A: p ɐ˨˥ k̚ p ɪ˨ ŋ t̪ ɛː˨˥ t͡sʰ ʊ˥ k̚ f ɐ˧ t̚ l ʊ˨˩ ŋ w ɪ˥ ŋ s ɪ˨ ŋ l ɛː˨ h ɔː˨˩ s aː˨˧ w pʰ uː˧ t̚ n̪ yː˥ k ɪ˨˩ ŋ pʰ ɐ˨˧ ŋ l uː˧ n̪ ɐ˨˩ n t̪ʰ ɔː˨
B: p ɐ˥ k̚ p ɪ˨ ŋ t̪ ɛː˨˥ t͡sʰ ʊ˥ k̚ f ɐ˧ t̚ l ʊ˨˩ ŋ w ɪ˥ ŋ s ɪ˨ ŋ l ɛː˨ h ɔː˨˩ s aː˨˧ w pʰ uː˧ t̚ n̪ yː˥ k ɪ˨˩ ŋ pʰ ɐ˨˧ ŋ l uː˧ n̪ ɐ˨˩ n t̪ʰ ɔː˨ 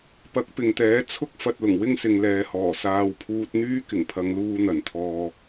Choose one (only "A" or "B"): A